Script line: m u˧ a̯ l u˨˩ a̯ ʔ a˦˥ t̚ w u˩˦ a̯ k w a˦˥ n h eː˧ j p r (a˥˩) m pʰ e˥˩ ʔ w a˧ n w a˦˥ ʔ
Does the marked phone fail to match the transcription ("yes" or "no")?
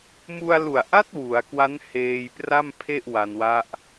no